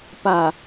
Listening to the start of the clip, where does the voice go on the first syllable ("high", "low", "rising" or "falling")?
low